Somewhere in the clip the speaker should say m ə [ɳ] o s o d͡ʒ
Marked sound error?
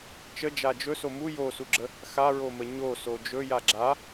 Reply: yes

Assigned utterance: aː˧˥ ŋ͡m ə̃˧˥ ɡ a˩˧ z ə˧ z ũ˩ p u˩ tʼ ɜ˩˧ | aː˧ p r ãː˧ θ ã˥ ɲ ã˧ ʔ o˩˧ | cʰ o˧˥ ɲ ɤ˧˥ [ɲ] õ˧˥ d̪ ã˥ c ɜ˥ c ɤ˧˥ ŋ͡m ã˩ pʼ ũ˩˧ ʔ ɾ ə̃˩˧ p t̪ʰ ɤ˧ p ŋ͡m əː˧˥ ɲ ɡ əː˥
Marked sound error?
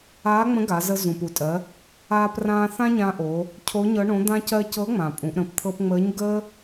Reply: yes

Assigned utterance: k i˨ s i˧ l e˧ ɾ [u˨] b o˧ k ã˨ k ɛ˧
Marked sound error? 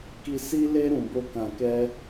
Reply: yes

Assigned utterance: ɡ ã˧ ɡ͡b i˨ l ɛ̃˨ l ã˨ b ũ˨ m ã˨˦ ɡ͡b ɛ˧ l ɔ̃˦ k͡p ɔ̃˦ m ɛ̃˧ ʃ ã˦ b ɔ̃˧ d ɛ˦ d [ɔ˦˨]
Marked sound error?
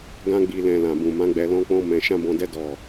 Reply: no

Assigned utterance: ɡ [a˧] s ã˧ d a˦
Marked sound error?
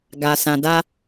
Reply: no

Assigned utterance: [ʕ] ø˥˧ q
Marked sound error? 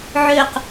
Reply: no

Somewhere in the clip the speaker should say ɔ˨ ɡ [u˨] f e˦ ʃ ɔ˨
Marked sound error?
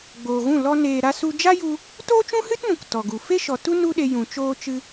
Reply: no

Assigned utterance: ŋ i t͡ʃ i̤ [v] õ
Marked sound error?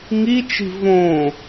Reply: no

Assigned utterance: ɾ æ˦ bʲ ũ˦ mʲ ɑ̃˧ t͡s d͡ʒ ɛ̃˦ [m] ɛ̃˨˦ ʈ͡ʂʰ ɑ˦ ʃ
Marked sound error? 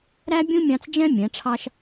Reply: yes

